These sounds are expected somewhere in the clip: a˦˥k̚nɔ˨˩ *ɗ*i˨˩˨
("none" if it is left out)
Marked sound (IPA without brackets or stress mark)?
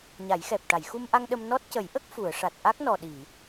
ɗ